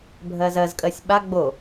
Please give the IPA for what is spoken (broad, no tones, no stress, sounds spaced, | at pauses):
bʱ ɜ z ɜ z kʼ ɜ sʲ ɓ a ɡ͡b o